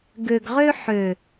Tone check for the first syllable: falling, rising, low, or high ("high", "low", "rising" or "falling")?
low